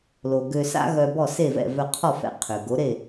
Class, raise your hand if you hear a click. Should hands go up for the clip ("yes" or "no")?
no